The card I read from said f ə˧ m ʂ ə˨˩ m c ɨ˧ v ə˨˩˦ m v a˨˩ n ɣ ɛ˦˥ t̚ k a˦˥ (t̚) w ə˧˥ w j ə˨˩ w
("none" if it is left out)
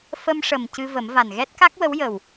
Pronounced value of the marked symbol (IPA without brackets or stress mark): k̚